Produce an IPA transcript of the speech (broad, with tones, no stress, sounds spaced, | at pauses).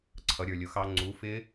ǀʰ ʌ˨˦ ɾʲ ə˞˨ lʲ ʊ˨˦ x ɑ˦˥ ŋ͡ǀ u˨˦ f ɪ˦˥